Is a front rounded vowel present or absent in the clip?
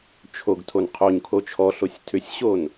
present